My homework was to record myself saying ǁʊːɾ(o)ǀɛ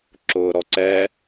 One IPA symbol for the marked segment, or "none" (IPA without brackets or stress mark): ɔ